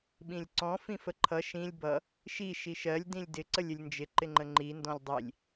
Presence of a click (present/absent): present